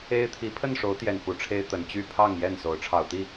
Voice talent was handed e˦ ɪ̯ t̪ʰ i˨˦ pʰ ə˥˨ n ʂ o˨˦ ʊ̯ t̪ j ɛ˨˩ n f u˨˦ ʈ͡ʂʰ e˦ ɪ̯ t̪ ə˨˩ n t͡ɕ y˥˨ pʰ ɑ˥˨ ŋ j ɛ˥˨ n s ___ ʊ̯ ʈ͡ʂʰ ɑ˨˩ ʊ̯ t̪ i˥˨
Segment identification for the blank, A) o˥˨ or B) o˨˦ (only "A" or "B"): B